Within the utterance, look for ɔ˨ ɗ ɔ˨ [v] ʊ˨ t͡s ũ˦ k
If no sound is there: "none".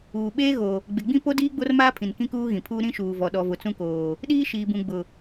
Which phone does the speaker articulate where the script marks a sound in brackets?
v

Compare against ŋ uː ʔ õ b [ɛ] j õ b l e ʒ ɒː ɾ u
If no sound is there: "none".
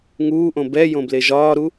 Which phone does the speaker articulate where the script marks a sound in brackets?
ɛ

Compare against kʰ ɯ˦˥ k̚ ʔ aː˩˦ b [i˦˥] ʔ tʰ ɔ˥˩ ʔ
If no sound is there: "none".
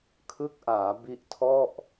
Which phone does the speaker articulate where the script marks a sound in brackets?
i˦˥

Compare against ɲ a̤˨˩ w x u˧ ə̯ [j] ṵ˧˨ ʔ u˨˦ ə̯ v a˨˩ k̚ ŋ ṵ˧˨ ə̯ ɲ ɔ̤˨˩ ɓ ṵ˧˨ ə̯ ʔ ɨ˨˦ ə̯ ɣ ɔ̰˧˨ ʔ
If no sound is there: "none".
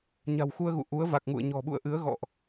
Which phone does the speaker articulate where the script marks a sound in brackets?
ɣ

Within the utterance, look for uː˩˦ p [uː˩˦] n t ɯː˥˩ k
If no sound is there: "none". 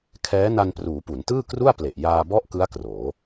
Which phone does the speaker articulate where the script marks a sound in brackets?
u˩˦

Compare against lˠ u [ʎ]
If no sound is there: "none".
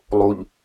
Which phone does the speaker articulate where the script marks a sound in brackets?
ʎ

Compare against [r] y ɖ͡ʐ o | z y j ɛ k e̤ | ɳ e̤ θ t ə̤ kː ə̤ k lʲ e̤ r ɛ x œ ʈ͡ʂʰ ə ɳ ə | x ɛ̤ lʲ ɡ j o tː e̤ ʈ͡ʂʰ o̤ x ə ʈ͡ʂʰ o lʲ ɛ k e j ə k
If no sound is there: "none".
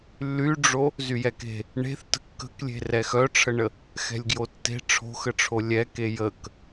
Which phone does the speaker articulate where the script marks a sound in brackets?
lː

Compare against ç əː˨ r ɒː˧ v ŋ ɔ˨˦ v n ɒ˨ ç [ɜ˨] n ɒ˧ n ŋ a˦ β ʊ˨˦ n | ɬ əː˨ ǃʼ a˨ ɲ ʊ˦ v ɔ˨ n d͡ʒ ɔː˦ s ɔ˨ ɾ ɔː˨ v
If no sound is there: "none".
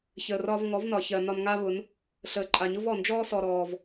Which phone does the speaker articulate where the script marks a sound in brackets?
ɜ˨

